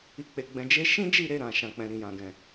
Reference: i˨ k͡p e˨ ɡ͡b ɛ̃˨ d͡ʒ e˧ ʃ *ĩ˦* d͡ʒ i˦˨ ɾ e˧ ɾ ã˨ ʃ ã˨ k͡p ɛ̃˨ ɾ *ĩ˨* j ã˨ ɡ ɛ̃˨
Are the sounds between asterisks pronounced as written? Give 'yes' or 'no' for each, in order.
yes, yes

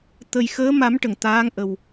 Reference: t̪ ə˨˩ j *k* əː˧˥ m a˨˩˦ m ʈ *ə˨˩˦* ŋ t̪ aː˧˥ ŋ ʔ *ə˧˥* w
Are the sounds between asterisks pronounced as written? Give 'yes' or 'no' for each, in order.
no, no, no

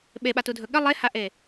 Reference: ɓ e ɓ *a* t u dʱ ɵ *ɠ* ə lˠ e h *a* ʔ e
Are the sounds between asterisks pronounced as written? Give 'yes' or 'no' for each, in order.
yes, yes, yes

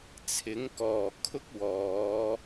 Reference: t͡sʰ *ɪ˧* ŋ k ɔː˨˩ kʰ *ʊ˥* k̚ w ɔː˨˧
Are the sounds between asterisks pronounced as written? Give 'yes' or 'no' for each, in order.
no, yes

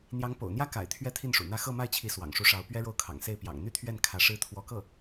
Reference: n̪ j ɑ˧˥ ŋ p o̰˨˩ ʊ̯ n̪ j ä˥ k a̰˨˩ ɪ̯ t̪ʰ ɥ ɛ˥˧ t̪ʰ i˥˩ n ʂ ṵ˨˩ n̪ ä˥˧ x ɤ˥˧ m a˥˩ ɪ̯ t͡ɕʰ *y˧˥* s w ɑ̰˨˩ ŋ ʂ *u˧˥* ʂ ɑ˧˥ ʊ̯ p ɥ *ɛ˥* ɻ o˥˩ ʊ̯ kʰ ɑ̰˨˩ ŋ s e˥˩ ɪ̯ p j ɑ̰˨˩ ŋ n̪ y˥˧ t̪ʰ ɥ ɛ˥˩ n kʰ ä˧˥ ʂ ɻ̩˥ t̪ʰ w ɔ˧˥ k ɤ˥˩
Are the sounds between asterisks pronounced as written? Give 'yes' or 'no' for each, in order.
no, yes, yes

